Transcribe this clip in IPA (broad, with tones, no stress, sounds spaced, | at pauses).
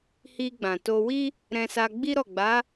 h i˧ ɡ͡b ã˨ t o˧ w i˦ | ɾ ɛ̃˧ s a˧ ɡ͡b i˦ ɾ ɔ˦˨ ɡ͡b a˨˦